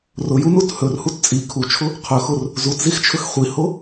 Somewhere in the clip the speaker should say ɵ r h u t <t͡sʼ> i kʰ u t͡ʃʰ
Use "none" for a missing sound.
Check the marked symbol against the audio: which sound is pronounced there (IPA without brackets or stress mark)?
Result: t͡sʼ